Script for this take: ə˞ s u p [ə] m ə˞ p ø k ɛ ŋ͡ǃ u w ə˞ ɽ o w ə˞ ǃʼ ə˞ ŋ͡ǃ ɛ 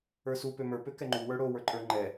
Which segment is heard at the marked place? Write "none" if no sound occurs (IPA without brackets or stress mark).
ø